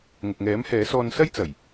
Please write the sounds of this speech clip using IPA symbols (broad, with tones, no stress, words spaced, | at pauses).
ŋʊ˨k̚ŋɛː˨˥mhɛː˨˥sɔː˧n sɐ˥j t͡sɐ˨˩j